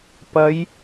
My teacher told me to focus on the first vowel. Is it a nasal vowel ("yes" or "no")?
no